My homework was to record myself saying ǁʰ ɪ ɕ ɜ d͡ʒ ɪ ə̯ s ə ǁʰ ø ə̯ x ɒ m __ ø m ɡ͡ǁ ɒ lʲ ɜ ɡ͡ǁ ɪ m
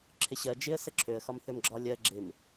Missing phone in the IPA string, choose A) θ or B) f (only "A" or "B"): A